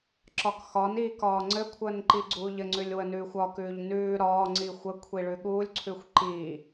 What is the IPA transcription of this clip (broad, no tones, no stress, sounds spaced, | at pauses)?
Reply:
ǁ ɒ k x ɒ n iː k ɒː ŋ͡ǀ ɘ kʷʰ əː n ǃ i ɡ͡ǀ uː ʎ ɘ ŋ͡ǀ ʉ lʲ w ə n ʉː xʷ ɒ k ʉː ʎ n ʉː ɾ ɒː ŋ͡ǀ i xʷ ə kʷʰ i ɭ ʉ ɠ uː lʲ ǀʰ ʉ xʷ ǃ iː